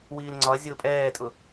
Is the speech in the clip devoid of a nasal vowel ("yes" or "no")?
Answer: yes